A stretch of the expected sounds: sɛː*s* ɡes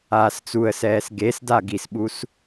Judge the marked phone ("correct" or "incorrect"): correct